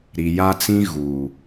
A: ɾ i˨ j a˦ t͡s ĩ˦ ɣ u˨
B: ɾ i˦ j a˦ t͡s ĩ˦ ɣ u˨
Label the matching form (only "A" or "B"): A